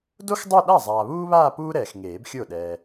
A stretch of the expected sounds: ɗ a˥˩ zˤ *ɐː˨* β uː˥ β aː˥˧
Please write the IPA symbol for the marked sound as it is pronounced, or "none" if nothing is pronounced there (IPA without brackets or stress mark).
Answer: aː˨